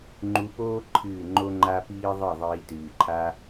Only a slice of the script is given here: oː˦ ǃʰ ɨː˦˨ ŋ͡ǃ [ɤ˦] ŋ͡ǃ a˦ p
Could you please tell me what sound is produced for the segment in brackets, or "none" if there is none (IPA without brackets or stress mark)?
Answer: o˦